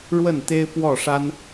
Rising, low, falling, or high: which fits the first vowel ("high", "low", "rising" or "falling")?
falling